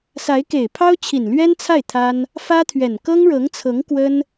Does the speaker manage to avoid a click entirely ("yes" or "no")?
yes